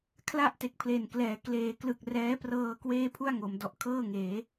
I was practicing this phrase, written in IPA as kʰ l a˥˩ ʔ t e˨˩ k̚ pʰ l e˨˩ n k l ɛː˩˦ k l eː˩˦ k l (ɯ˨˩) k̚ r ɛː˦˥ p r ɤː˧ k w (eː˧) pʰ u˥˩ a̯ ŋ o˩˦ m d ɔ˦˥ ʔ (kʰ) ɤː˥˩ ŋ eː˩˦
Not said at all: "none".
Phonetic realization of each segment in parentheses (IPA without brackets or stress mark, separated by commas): ɯ˨˩, eː˥˩, kʰ